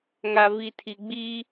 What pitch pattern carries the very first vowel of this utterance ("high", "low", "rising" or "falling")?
low